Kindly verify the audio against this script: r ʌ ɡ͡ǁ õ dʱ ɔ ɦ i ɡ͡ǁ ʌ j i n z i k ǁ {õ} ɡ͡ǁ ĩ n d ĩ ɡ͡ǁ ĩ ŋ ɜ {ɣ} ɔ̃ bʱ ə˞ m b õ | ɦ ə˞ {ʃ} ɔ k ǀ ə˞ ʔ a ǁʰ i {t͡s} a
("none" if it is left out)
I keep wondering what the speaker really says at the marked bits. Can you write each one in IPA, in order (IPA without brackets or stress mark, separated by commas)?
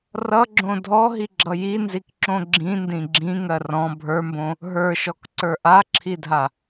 õ, r, ʃ, dʱ